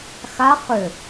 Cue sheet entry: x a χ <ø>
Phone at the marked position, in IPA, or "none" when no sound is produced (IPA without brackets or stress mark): ø